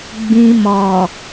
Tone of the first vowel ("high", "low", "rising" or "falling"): low